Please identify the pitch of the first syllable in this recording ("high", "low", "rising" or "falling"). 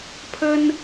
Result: high